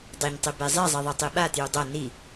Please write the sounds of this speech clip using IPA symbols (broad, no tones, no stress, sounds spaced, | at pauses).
dˤ ɛ ɲ tˤ i b e zˤ i zˤ i ðˤ e tˤ i ɓ a t j u dˤ ʌ n i